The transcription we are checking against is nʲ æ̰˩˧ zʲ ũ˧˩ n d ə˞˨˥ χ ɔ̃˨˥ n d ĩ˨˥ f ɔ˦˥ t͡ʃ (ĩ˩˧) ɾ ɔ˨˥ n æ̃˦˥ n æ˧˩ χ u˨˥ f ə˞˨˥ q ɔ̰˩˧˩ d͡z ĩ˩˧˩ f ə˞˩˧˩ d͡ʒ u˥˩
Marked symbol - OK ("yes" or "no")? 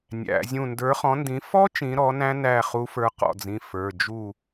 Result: yes